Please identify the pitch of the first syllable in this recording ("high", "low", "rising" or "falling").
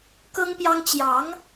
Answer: high